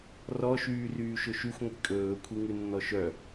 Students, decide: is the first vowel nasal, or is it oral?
oral